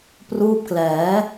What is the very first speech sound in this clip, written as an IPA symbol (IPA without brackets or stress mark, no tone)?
p